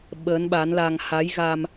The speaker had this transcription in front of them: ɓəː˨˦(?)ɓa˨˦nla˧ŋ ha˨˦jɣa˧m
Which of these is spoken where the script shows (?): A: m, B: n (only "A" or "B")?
B